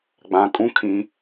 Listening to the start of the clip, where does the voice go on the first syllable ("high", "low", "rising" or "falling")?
low